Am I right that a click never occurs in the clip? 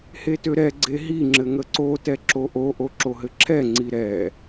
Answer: no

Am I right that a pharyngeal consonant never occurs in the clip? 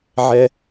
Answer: no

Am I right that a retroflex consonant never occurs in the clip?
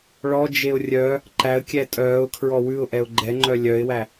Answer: no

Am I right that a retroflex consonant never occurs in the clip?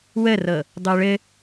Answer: no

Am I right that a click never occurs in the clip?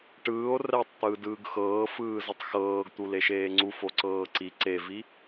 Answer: no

